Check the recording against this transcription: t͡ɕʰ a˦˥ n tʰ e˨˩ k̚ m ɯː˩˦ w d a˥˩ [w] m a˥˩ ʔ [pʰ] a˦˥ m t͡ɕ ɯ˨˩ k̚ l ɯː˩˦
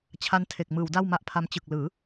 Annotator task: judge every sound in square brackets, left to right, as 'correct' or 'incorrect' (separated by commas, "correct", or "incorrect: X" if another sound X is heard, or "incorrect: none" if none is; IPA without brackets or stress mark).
correct, correct